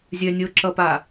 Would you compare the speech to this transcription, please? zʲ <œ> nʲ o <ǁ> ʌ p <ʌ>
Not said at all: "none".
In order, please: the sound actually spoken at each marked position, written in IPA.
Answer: œ, ǁ, a

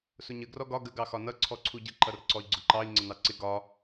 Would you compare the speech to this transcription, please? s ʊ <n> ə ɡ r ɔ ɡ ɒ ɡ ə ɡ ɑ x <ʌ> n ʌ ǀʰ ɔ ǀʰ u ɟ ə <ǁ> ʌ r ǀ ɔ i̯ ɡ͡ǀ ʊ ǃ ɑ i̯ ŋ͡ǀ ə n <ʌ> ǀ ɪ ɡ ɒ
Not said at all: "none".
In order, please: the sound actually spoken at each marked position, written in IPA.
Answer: ɲ, ɒ, ǃ, ɑ

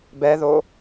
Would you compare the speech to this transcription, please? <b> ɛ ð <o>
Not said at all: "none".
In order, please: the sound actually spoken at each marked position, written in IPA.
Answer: b, o

